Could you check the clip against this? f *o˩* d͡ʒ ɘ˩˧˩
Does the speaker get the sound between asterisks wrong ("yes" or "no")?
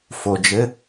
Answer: no